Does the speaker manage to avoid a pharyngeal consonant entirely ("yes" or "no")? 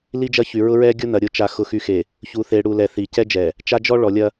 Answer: yes